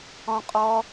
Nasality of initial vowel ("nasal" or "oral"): nasal